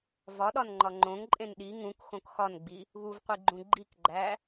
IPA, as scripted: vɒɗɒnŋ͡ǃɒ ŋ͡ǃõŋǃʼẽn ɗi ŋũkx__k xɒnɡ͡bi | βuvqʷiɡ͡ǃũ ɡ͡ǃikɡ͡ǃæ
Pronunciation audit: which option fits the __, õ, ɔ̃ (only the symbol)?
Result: õ